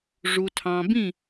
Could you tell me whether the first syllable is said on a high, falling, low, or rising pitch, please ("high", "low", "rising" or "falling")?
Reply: low